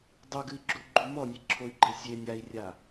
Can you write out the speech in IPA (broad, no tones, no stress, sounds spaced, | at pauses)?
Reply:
dˤ u ɡ ɨ i̯ ɡ͡ǁ u ɡ͡ǃ u m ɔ nʲ e ǁʰ o y̯ ɡ͡ǃ e sʲ e nʲ a i̯ rʲ a